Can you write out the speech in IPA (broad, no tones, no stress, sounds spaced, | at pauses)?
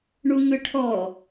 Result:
ɳ u ŋ ɯ ʈʰ ɔ